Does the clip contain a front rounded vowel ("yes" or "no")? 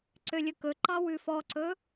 yes